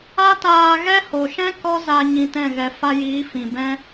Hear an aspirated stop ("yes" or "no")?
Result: no